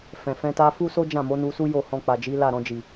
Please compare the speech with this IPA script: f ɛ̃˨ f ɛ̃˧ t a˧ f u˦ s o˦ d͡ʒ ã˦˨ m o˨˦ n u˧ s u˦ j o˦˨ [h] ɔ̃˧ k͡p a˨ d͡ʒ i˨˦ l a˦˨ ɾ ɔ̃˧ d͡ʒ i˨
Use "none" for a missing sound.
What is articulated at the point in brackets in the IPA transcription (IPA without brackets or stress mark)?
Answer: h